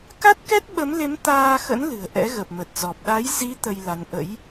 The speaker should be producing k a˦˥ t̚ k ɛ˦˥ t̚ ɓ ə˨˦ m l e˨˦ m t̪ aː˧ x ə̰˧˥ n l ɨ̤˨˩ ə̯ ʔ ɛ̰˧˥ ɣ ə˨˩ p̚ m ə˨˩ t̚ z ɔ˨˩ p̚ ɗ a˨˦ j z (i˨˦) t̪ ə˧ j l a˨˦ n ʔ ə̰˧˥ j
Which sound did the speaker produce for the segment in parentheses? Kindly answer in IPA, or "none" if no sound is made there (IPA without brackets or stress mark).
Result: i˨˦